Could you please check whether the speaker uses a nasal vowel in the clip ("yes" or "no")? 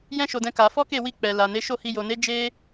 yes